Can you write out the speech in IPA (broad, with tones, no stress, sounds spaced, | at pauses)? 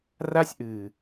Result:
r a˦ sʲ ʔ ɨː˨